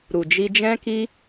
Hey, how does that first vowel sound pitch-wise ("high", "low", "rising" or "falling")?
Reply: low